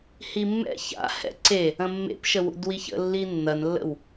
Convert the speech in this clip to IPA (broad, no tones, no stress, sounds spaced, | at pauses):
h i mː ɛ̰ ç a̰ h ɛ̰ ǀ e | ɐ̃ mː ḛ p ʃ ə w ṵ d w i ç ə̰ lː i nː ɐ n lː ə̰ w